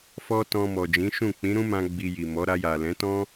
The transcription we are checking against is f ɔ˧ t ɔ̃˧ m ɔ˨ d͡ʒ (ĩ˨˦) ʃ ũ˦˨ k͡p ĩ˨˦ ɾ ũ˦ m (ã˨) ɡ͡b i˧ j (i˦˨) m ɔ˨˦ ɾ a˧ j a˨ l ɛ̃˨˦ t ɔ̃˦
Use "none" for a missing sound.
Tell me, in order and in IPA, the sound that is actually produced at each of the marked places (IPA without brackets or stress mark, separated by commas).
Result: ĩ˨˦, ã˧, i˨